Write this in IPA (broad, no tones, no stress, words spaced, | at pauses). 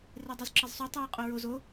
redˤozǁʌzsˤu tˤuːqʼoɹoz o